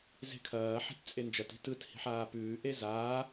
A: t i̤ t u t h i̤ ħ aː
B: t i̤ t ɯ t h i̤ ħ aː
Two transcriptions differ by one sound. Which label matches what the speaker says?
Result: B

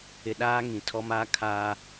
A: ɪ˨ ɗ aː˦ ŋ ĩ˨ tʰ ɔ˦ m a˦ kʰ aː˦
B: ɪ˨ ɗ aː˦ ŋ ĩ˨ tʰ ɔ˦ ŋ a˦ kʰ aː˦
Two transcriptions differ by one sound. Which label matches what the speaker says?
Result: A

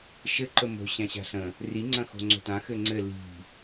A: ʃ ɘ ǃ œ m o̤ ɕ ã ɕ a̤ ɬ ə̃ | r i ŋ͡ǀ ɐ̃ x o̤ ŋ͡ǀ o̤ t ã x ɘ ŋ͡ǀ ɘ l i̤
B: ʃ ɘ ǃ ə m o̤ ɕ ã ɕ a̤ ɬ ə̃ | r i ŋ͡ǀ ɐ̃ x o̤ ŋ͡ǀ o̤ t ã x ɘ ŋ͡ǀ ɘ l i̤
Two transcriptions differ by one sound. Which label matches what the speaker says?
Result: B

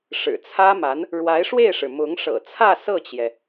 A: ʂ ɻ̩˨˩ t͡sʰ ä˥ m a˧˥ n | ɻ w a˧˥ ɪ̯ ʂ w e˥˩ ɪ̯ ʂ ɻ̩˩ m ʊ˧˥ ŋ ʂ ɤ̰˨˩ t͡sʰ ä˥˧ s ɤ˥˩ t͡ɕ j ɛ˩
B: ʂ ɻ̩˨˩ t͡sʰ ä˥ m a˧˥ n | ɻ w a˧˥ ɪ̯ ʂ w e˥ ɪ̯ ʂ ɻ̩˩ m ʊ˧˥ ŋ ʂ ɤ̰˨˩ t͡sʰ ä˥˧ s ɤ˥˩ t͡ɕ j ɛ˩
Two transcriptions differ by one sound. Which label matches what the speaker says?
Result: A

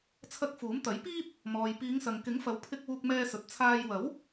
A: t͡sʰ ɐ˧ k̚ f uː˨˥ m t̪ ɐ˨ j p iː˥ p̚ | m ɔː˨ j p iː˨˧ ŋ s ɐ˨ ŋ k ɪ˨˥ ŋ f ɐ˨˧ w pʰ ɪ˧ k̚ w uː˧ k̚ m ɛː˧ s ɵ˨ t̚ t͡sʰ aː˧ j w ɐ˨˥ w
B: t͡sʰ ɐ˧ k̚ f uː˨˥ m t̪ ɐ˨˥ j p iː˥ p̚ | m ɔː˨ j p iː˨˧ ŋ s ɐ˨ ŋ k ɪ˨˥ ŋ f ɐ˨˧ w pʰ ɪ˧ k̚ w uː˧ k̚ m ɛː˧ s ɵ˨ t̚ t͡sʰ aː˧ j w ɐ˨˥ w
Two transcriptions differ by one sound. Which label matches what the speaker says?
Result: B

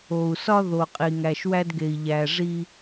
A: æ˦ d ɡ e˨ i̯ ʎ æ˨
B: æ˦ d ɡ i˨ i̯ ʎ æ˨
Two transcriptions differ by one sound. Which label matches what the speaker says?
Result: A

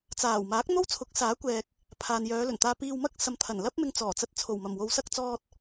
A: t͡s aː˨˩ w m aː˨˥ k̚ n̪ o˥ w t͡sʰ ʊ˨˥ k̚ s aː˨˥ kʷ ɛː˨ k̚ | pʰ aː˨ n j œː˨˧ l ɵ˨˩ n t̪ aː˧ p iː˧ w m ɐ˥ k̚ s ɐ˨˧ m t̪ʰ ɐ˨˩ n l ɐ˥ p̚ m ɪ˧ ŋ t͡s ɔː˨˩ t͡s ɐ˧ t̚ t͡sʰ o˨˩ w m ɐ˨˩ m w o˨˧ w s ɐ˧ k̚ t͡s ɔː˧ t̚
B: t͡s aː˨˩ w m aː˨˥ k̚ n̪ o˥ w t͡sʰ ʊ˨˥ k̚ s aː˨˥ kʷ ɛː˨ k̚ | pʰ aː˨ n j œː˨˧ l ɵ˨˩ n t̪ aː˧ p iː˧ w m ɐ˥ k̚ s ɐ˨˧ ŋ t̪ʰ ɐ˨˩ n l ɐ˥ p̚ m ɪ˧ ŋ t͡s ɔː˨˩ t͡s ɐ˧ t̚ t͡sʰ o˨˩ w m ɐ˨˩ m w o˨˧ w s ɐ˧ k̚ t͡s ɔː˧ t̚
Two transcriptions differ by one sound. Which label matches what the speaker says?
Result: A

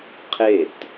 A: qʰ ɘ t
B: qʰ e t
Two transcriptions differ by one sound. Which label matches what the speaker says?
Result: B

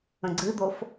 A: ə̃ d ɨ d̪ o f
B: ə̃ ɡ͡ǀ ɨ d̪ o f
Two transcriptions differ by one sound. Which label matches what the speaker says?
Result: B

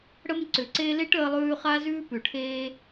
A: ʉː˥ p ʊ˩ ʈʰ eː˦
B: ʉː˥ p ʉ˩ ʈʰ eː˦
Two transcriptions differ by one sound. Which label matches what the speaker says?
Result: B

